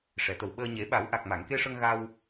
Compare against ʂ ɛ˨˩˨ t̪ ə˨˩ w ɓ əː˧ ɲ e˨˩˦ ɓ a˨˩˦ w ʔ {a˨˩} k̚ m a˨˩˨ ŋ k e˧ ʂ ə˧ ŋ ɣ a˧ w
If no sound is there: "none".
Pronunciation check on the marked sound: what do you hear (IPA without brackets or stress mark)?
a˨˩